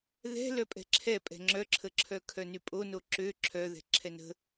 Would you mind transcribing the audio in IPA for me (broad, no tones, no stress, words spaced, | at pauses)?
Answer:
ðɛ̤ lœpʼɛ̤ǁʰɛ pʼɛ̤ŋ͡ǁœǁʰəǁʰœ kʰœnypʼono ǁø ǁʰœðɛ̤ ǁʰɛnə̤